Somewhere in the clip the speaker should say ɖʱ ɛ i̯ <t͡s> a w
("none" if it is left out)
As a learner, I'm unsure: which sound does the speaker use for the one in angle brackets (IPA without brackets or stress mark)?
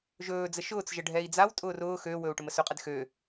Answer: d͡z